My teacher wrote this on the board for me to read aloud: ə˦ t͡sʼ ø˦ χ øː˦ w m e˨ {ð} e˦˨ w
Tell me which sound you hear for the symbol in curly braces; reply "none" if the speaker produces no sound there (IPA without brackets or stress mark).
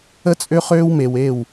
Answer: w